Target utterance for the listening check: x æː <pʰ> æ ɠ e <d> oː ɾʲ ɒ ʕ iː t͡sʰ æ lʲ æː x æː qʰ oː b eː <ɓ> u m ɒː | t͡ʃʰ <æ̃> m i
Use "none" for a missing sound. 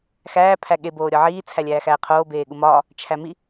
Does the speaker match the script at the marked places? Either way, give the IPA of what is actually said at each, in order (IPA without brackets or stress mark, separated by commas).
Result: pʰ, b, ɠ, æ